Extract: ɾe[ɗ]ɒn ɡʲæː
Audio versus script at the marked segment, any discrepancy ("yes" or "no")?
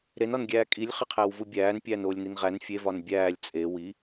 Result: yes